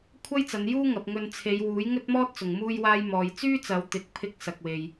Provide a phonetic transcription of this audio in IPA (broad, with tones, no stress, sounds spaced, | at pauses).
kʷʰ ɐ˥ j t͡s ɐ˨˧ n j uː˥ ŋ ɐ˧ p̚ ŋ ɵ˧ n t͡sʰ e˨˧ j w uː˨˥ j ŋ ɵ˥ t̚ m ɔː˥ t̚ t͡s ʊ˨ ŋ m uː˥ j w aː˥ j m ɔː˨ j t͡s yː˥ t͡s ɐ˨˧ w t̪ ɪ˧ k̚ pʰ ɪ˥ k̚ s ɐ˧ k̚ w e˧ j